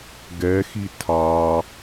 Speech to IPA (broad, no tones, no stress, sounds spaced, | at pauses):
ɡ ɛ x i tʰ ɑ